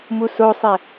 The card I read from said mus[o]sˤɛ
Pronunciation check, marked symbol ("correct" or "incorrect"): correct